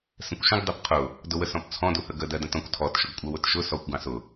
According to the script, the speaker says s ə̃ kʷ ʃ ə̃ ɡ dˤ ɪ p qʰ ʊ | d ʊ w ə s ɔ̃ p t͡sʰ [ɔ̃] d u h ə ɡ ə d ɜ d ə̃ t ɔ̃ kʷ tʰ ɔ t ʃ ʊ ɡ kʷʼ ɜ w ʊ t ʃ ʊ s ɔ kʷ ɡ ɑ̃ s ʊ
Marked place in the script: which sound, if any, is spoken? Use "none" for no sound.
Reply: ɔ̃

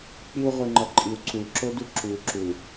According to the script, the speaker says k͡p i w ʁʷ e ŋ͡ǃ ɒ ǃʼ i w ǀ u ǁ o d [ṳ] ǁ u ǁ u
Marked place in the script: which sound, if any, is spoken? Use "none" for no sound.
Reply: u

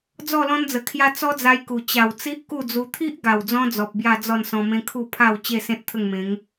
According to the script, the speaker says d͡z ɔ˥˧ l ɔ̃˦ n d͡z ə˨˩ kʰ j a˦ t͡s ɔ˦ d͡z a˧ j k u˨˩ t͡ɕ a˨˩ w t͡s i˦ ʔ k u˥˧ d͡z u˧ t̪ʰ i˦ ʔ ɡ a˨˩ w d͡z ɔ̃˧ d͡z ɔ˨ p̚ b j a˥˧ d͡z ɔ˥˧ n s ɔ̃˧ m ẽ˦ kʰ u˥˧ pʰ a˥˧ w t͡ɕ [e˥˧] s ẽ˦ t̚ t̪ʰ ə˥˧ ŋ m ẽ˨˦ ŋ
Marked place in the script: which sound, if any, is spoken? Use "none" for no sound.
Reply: e˥˧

